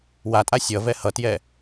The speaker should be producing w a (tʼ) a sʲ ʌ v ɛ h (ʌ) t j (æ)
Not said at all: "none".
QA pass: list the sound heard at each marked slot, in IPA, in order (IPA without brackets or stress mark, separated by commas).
tʼ, ʌ, ɛ